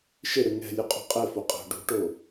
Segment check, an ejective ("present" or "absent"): present